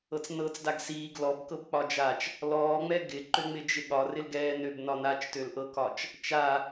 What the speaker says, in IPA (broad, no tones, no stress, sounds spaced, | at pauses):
ɤ t͡s n ɤː t͡s d a ɡ s iː ɡ l ɔ b k ɤ b k͡p ɒ d͡ʒ a t͡ʃ | l ɔː ŋ͡m ɛ ɡ ɪ ǃ ø ŋ͡m ɪ d͡ʒ ɪ ɠ ɒ r ɪ l ɡ ɛː n ø b n ɒ n a t͡ʃ t ø l ʔ ɤ k ɒ t͡ʃ | t͡ʃ a